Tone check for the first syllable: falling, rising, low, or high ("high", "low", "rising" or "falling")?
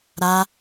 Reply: high